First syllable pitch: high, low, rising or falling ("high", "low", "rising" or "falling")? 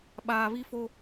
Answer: low